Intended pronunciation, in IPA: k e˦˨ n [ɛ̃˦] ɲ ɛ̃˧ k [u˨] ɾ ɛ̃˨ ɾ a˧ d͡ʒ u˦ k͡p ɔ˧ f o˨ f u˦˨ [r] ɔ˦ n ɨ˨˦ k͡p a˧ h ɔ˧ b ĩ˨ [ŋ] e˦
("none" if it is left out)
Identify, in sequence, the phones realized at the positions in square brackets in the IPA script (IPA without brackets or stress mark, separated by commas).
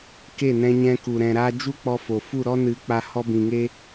ɛ̃˧, u˨, ɾ, ŋ